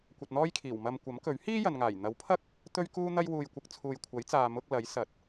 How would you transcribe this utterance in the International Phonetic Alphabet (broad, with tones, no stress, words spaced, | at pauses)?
kʷɐ˧t̚n̪ɔː˥jkʰiː˨˩w mɐ˧mkʷɐ˨˥m kɵ˨˥ɥhiː˥jɐ˨nŋaː˨˩j n̪ɐ˨˥wpʰɐ˥k̚ | t̪ɵ˥ɥkuː˥ n̪ɐ˥jwuː˧jkʷɪ˨˥k̚ t͡sʰuː˨jkʷʰɐ˨˥jt͡saː˨ mʊ˧k̚ lɐ˨˥jsɐ˨˥t̚